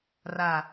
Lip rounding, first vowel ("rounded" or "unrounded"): unrounded